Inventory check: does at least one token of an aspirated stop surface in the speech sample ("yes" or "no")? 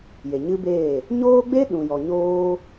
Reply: no